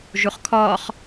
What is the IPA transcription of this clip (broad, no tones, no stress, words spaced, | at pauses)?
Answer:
ʒuχkʰɔːχ